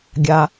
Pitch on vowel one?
low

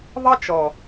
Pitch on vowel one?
high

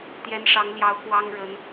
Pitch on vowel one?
rising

